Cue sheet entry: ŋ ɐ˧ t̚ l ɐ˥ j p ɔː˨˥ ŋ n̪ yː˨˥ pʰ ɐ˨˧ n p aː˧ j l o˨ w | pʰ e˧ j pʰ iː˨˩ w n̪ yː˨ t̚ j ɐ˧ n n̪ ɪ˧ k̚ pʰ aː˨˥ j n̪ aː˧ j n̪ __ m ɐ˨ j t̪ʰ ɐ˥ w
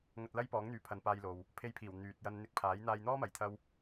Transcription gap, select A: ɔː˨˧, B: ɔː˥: B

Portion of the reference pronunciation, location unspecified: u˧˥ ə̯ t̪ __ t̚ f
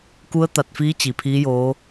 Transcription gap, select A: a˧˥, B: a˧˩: B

